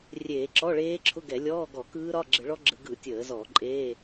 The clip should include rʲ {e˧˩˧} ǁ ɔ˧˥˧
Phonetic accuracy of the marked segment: incorrect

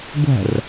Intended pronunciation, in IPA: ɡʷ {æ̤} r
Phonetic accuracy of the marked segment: correct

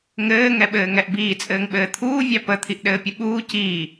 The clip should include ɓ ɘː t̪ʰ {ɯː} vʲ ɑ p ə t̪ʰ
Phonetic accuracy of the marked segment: incorrect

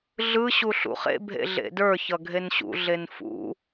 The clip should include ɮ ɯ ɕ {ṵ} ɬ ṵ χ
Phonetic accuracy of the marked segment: incorrect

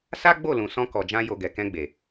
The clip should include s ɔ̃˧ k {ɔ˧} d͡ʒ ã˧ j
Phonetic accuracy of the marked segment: incorrect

